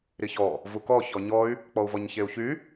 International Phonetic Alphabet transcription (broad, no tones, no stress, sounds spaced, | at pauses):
ɾ i ç ɔ | v u k ɔ ç ɔ ɲ ɔ y̯ | k͡p ɔ u̯ v ɔ ɲ ç e u̯ ç y